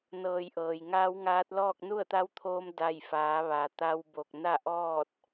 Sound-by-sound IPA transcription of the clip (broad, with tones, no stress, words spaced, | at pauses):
nɤː˧˩jʔɤː˩j ŋaː˧˥wŋaː˧˥t̚ lɔː˥˨k̚nu˥˨ə̯t̪a˧˥wt̪ʰoː˧m da˧˩jfaː˩˧ ʋa˩ t̪a˧w bo˧˩k̚ na˥˨ʔɔː˥˨t̚